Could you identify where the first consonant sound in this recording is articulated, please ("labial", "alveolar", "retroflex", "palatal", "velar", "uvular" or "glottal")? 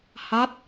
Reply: glottal